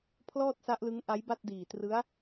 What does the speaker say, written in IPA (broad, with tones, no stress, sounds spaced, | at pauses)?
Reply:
pʰ l ɔː˥˩ t̚ s a˦˥ ʔ l ɯ˦˥ ŋ ʔ a˦˥ j b a˥˩ t̚ d iː˨˩ t r ɯ˦˥ a̯